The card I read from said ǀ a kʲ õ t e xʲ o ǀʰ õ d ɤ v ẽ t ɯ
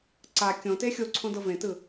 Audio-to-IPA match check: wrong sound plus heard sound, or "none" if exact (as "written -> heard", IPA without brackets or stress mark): none